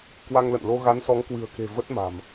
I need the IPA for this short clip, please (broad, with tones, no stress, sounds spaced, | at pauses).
k w a˧ ŋ l ə̰˧˨ n l o˧ ɣ a˨˦ n s ɔ˨˦ ŋ k w ɨ̤˨˩ ə̯ k e̤˨˩ v ə˦˥ t̚ m a̤˨˩ m